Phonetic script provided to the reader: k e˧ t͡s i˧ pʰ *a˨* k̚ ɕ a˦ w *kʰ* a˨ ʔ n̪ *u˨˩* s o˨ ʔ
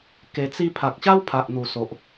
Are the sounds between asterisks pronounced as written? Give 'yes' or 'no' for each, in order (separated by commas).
yes, no, yes